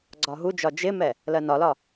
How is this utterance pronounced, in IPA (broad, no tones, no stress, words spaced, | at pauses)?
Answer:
ɡ͡ǀɒɦud͡ʒɒ d͡ʒɪmɛ | lɜnɒlɒ